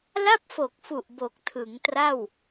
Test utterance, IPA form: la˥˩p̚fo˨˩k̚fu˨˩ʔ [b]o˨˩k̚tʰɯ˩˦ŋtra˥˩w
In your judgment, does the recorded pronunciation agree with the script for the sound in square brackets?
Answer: yes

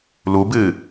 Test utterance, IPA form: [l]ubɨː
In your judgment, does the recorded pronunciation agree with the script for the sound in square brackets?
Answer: yes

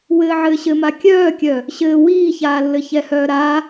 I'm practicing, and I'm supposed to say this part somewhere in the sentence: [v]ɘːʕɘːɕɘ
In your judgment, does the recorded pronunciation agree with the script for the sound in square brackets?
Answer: no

